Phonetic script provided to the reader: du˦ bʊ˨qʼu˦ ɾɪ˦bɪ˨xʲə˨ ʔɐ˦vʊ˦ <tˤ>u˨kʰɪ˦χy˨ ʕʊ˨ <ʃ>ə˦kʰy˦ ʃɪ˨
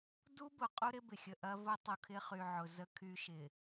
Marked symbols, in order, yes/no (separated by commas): yes, no